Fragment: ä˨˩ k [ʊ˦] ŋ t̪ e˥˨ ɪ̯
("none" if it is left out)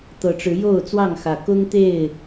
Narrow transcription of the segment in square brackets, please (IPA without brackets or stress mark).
ʊ˦